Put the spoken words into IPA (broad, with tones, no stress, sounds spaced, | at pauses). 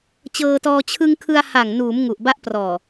t͡ɕ ɤː˧ t ɔː˧ t͡ɕʰ ɯ˧ ŋ kʰ ɯ˧ a̯ h a˨˩ ŋ n uː˩˦ m ŋ u˨˩ ʔ b a˦˥ ʔ p r ɔː˨˩